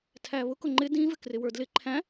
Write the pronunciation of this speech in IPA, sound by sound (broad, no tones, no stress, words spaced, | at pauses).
tʰæβʊ kʊŋ͡ǃɪ dĩvɪ krɪwə˞dlɪ ǃʰæ̃